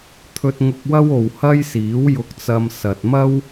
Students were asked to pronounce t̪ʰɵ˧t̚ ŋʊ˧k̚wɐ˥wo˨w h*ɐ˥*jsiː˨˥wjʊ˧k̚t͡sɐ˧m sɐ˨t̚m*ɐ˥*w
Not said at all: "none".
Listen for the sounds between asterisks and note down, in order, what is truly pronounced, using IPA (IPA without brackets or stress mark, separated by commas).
ɐ˥, ɐ˥